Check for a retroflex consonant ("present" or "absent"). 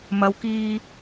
absent